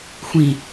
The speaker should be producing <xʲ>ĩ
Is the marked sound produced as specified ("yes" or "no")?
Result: no